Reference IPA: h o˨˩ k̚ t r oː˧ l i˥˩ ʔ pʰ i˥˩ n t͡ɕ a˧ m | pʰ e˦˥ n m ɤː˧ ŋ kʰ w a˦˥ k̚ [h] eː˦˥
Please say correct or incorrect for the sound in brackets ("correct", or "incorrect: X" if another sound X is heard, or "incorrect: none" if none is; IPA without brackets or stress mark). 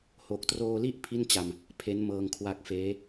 incorrect: f